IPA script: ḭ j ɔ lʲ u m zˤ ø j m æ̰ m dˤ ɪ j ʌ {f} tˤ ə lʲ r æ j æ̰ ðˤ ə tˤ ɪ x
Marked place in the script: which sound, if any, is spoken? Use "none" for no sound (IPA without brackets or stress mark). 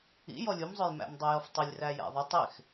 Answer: f